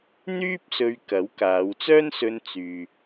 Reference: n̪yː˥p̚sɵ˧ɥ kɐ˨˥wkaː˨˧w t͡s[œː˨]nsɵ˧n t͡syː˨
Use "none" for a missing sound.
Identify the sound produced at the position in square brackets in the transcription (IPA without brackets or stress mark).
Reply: œː˥